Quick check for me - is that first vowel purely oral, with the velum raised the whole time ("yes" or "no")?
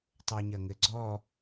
yes